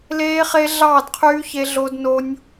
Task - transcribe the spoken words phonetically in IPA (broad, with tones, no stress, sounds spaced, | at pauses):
l eː˦˥ χ e˦˥ ɮ ɑː˥˨ d qʰ yː˦˥ ç e˦˥ ɮ o˦˥ d n o˦˥ nʲ